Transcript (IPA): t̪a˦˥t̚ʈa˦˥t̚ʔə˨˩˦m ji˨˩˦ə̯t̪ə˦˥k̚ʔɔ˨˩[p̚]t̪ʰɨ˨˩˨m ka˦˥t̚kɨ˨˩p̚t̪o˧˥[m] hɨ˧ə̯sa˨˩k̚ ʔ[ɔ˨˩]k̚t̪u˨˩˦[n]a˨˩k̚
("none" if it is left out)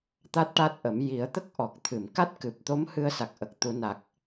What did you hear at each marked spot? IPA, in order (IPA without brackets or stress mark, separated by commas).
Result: k̚, m, ə˨˩, n